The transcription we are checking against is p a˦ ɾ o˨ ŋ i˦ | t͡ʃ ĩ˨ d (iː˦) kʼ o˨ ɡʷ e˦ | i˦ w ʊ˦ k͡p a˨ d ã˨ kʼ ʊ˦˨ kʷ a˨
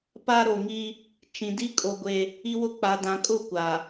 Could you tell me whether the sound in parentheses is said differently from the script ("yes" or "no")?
yes